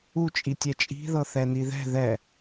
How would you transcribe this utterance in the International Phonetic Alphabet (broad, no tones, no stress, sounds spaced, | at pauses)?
u t͡ʃʼ i tʲ ɛ t͡ʃʼ i̤ ð ɤ θ ɛ n i ð ɛ̤ ð ɛ